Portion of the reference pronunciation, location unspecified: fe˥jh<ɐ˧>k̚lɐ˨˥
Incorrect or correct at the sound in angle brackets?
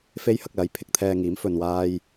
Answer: correct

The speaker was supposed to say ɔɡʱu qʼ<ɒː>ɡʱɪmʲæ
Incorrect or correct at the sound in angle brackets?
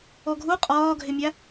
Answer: correct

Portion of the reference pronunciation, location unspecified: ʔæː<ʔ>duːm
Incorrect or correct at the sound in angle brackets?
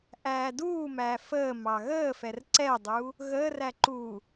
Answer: incorrect: none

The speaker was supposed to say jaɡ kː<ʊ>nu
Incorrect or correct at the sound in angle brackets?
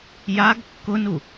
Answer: correct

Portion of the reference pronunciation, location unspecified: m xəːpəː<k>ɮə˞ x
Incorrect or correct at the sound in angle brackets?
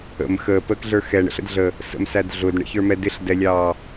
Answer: correct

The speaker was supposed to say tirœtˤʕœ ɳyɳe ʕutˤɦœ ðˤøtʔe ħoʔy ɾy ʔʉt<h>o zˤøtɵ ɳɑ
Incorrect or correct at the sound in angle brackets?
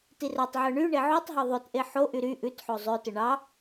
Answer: incorrect: ħ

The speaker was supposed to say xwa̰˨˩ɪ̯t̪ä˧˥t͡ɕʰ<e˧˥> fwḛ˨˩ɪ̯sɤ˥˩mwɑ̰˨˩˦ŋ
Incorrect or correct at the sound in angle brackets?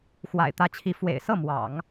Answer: incorrect: i˧˥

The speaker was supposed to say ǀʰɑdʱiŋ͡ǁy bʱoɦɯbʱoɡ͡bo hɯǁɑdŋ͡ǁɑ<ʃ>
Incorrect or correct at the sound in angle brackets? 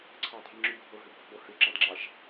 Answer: correct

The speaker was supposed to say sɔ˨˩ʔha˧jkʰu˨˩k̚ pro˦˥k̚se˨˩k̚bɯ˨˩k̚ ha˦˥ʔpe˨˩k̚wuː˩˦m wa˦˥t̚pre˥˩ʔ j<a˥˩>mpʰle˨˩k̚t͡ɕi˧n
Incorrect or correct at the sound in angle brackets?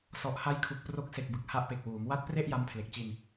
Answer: incorrect: a˦˥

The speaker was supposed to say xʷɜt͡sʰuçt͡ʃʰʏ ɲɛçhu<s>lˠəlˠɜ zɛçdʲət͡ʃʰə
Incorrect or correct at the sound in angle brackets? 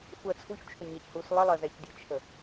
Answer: correct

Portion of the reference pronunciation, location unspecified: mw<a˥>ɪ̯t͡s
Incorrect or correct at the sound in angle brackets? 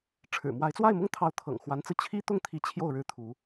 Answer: incorrect: a˧˥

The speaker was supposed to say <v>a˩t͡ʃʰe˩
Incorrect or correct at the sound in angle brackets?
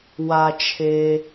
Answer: incorrect: w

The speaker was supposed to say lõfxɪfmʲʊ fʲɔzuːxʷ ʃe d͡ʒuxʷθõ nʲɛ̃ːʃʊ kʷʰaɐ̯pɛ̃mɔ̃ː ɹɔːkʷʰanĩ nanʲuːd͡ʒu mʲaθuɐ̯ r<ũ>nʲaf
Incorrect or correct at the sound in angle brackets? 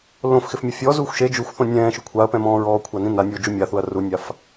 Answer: incorrect: u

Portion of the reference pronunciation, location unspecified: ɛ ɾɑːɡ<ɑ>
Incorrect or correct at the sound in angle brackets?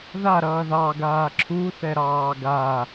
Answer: incorrect: a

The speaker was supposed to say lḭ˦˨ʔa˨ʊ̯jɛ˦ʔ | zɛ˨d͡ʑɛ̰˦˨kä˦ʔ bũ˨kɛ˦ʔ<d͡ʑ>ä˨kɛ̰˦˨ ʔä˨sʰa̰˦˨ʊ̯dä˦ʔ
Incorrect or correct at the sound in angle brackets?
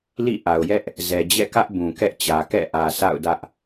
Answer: incorrect: t͡ɕ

